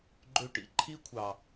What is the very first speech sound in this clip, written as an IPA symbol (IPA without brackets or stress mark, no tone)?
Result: ɡ͡ǃ